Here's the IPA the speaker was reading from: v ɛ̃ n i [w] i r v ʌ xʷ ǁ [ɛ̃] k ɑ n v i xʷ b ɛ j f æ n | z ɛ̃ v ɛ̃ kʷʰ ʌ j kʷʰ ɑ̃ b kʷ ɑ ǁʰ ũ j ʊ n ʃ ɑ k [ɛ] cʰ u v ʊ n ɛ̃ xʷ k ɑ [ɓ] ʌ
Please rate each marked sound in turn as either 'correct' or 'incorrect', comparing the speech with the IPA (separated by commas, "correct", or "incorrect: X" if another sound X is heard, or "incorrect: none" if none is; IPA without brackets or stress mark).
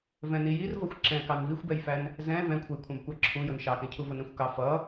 incorrect: j, correct, incorrect: ɛ̃, incorrect: f